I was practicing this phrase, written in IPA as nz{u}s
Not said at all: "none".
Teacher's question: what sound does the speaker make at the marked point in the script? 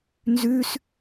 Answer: ʉ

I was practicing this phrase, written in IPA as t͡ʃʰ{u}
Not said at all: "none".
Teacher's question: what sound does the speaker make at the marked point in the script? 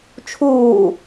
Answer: uː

